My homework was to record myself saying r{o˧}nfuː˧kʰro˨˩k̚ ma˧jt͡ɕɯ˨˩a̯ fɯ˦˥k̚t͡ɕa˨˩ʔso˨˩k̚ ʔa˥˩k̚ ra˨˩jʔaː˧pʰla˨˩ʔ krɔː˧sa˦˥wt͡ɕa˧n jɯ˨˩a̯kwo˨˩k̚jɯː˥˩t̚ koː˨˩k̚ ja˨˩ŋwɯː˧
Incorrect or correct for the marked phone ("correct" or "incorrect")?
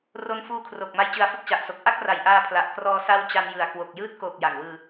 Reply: correct